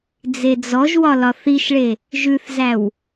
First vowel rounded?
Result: no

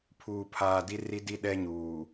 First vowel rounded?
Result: yes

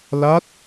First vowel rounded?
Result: no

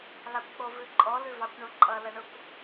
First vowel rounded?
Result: no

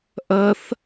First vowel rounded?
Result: no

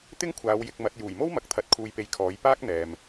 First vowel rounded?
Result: no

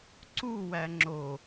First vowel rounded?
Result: yes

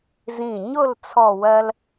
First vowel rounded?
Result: no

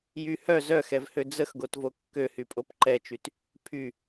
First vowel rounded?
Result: yes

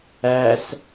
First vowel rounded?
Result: no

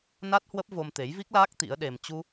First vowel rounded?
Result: no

